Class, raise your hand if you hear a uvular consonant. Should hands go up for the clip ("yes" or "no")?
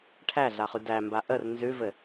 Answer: yes